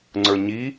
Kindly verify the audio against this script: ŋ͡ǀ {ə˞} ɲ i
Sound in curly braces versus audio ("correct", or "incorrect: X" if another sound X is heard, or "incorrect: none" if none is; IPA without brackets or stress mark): correct